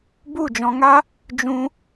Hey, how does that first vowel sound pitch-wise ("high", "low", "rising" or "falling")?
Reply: falling